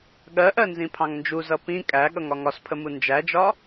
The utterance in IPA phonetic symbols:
ɠɜʔɜ nzĩpʰɑ̃ŋnd͡ʒuzʌ pĩ kʼæ ɠʌŋɒŋɒspʰə mund͡ʒæd͡ʒɒ

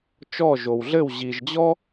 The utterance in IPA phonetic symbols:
t͡ʃɔ˥˧ʒo˧wɮɘ˥˧w ʑi˧ʒd͡ʑɔ˥

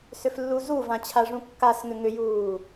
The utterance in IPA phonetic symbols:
sʏflːuzuvã t͡ɕʰaʐũkːasŋʏ ŋʏjuː

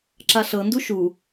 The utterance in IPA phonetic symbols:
ǁaɬɤndu ʃu

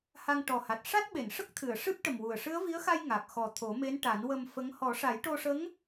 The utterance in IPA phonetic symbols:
ha˧ŋʈɔ˨˩ha˨˩t̚ ʂa˦˥t̚ɓe˨˩˨nʂə˦˥k̚t̪ʰɨ˨˩˨ə̯ ʂɨ˦˥p̚ʈə˨˩mwu˨˩ə̯ ʂɨ˧˥ə̯vi˧˥ə̯xa˧j ŋa˨˩k̚ xɔ˨˩t̪ʰo˨˩˦me˧˥nʈa˨˩˦n wə˧mfə˧˥ŋ hɔ˨˩˦ʂa˨˩˦jʈo˧ʂə˧˥ŋ

